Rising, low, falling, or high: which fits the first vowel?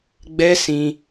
high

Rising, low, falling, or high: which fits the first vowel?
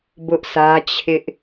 high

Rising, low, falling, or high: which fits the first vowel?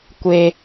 low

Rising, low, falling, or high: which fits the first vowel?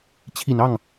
low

